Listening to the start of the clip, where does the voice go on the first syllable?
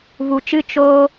low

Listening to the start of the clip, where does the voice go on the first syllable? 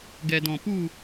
low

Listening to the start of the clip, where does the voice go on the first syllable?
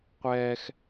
high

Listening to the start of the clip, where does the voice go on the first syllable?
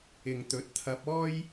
low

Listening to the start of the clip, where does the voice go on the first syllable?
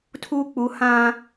low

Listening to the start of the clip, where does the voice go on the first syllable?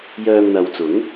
low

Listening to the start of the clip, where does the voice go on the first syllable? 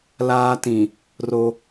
high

